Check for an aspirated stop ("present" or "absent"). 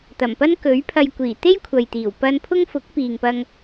present